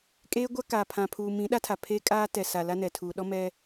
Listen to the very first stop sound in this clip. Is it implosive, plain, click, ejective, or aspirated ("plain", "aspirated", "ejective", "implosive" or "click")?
ejective